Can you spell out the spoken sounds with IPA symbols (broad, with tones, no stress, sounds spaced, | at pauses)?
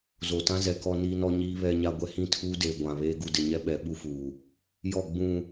z o˨ t ã˦ z ɛ˨ k ɔ˦ n iː˦ n ɔ˦ ɲ iː˦ β ɛ˦ ɲ a˦ ɡʷ ɛ˦ h ĩ˦˨ tʰ uː˦ d eː˨ ɡʷ ã˨ β eː˦ ɡ u˨ d ɪ˨ ɲ ɛ˦ ɓ ɛ˨˦ ɓ u˦ f uː˨ | j ɔ˦˨ ɡ͡b ũ˨